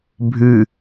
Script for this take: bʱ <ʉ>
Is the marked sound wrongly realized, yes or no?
no